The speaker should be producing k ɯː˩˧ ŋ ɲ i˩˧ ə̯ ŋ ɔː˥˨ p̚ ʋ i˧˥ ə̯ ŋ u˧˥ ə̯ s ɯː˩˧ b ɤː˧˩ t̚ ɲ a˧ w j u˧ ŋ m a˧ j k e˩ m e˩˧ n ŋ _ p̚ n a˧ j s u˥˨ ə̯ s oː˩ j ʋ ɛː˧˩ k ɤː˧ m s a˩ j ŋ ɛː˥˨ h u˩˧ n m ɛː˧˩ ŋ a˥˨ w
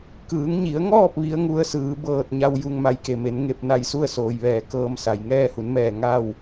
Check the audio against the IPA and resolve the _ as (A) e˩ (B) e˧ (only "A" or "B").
B